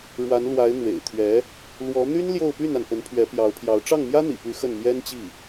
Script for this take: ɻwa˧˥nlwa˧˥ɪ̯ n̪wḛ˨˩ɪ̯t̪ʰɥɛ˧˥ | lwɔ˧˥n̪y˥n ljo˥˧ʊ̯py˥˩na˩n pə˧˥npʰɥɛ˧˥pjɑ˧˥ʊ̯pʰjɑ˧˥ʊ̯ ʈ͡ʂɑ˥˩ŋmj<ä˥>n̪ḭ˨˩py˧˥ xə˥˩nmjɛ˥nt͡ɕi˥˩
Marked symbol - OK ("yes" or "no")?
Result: yes